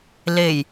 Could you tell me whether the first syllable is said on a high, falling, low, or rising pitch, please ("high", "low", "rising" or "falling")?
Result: low